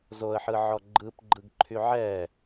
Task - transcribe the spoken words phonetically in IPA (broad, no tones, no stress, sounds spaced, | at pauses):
z o ə̯ ħ ɯ ʕ ɔ ɡ͡ǃ ɯ p ɡ͡ǃ ɯ ɡ ǃʰ y ʕ ɛ